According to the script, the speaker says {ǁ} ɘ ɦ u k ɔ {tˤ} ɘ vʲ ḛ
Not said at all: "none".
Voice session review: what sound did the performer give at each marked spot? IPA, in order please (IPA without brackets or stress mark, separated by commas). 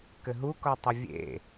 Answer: k, tˤ